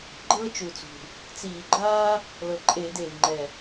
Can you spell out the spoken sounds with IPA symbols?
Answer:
ɡ͡ǃ ɤː˥ t͡ʃ u˨˩ t͡s ṳ˨˩ | t͡s iː˧˩˧ ɡ͡ǃ aː˥ | l ɤ˨˩ ǃʼ eː˧˩˧ d eː˨˩ v ŋ͡ǃ ɛ˨˩

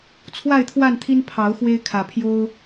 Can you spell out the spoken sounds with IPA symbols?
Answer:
t͡sʰ w a˥˨ ɪ̯ t̪ʰ w a˥˨ n t̪ʰ i˦ n pʰ ɑ˨˦ ʊ̯ x w e˦ ɪ̯ kʰ ä˨˩ pʰ j o˦ ʊ̯

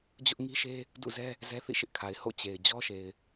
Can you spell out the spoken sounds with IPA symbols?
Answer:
d͡ʑ ʊ˦ ʔ ŋ i˦ ʃ e˦ | d ṵ˦˨ z ɛ˦ | z ɛ˦ θ ḭ˦˨ ʃ ɪ˦ ʔ kʰ a˨ ɪ̯ h o̰˦˨ t͡ɕ e˨ ɪ̯ d͡ʑ ɔ˦ ʃ e˨ ɪ̯

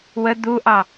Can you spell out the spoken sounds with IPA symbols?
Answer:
w ə d̪ u ʔ ɑ

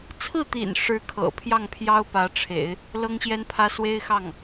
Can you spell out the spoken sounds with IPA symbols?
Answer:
t͡sʰ ɹ̩˥˩ t̪ ḭ˨˩ n ʂ ɻ̩˥ kʰ ɤ̰˨˩ pʰ j ɑ˥˩ ŋ pʰ j ɑ˥ ʊ̯ p ä˧˥ ʈ͡ʂʰ ḛ˨˩˦ ɪ̯ | l ɤ˥ ŋ ɕ j ɛ˥ n pʰ ä˥ s w e˥ ɪ̯ x ɑ˥˩ ŋ

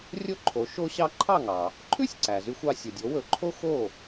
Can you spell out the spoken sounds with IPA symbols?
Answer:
rʲ o˥ ǃʰ o˩˥ ʃ o˥ ɕ ɑ˥ ǃʰ ɑ˥˩ ŋ ɑ˩ | ǃʰ ʉ˥ sʲ ǀ æ˩ z y˧ xʷ ɑ˧ sʲ o˩ dʲ o˩˥ w ɵ˩˥ ǃʰ o˥ x o˥˩

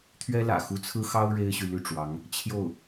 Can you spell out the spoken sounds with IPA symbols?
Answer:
t̪ʰ ɥ ɛ˥ l ä̰˨˩ x u˧˥ t͡sʰ ɹ̩˥ x ɑ˥ ʊ̯ ɻ e˥ ɪ̯ ɕ y˨ l y˥˩ ʈ͡ʂ w ɑ˧˥ ŋ | t͡ɕʰ j o˥˩ ʊ̯

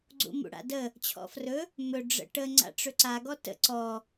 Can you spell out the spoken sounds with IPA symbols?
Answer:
ɡ͡ǀ ṵ m ṵ ɽ a̰ d ə | t͡ɕʰ ɔ̰ f r ɵ | m ɵ ɖ͡ʐ ə̰ ʈ ə ŋ͡ǀ a̰ ʈ͡ʂ ɵ ǀ a ɡ ɔ t ə̰ ǀ ɔ

